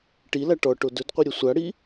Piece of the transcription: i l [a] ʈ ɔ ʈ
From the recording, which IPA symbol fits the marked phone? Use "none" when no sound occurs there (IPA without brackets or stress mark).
a